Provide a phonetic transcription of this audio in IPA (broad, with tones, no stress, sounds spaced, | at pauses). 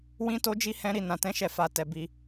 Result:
w ĩ˦ t o˦ d͡ʒ i˦ h ɛ̃˦ ɾ i˦ n ã˧ t ɛ̃˦ ʃ ɛ˦˨ f a˧ t ɛ˧ b i˧